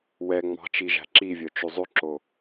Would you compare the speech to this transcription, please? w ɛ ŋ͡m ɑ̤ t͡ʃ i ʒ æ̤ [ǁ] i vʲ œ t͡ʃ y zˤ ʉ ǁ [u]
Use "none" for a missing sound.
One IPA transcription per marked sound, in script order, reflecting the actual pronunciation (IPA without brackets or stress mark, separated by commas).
ǁ, o